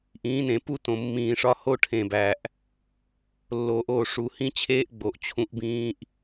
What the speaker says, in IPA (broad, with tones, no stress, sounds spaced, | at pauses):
ʔ ĩː˨˦ n ẽ˨ p u˦ t õ˨ mː ĩː˨ ʂ ɒ˦ h o˦ ʈʰ ẽ˨ b æ˨ ʔ | lː oː˨ ʔ oː˨ ʂ u˨ h ĩ˦ t͡ɕʰ eː˦ ʔ ɡ͡b o˨ ʔ t͡ɕʰ ũ˦ ʔ b ĩː˦ ʔ